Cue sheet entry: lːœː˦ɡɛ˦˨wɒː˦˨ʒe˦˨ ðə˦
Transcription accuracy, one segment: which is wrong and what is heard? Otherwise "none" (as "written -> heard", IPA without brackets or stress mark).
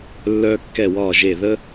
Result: ɡ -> kː